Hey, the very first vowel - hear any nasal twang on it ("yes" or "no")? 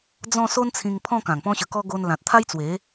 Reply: yes